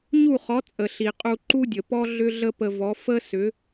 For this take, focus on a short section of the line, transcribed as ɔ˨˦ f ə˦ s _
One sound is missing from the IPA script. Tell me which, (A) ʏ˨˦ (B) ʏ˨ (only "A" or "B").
A